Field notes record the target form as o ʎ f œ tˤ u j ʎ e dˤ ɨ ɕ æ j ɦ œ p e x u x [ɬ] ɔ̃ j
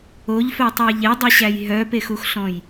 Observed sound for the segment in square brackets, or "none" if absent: ɬ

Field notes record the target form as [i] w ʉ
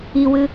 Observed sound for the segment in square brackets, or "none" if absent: i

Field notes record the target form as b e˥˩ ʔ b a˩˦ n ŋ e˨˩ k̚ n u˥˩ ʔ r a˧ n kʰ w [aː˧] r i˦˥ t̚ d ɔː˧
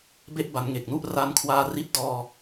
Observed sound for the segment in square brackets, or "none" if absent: aː˧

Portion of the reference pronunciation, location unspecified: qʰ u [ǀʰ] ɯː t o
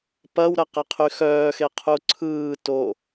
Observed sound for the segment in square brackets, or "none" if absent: ǀʰ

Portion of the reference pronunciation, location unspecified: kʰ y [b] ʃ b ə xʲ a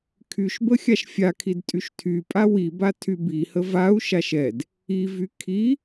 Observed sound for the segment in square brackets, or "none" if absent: none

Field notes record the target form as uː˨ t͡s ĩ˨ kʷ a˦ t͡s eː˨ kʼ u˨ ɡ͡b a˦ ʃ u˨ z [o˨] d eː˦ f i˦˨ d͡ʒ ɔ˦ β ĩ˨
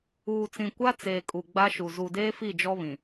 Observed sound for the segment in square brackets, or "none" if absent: u˨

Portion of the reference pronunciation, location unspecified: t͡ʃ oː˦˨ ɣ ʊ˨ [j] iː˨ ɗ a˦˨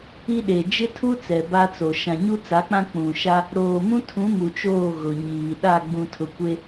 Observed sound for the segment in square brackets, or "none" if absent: ɲ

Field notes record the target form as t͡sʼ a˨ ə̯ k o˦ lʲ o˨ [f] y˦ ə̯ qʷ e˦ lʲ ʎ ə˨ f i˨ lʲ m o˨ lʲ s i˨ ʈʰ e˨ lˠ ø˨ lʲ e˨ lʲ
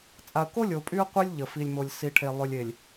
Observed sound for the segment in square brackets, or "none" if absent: pʼ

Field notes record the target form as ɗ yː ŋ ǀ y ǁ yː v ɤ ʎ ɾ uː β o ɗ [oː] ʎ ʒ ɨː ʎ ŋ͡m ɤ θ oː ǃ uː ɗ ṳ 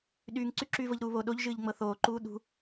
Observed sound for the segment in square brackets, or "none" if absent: o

